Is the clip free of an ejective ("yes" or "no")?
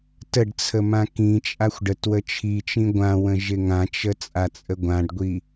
no